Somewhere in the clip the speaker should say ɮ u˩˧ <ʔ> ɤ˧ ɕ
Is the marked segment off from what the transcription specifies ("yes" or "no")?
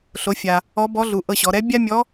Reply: no